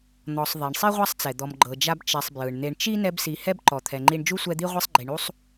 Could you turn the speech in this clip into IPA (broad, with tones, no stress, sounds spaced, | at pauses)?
n̪ ɔ˨ sˤ ðˤ e˩ ɳ sˤ i˥ ʁʷ a˥ sˤ t͡s ɛ˩ d̪ ɔ˨ m ɡ͡ǃ ɤ˨ d͡ʒ a˦ b t͡ʃ ɛ˨ sˤ b j ɯ˩ ɳ n̪ e˨ ɳ t͡ʃ i˥ n ɛ˦ b s i˨ h ɛ˥ b ǃ ɔ˨ t̪ʰ ɛ˨ ŋ͡ǃ i˦ ɳ d͡ʒ u˥ sʷ ɛ˦ d̪ i˥ ʁʷ i˥ sˤ ɡ͡ǃ i˨ ɳ u˥ sˤ